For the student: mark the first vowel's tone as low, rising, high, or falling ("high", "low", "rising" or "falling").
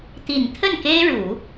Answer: low